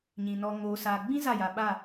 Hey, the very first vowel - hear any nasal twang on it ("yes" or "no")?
yes